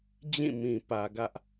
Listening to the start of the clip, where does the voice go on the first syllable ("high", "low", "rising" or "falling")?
falling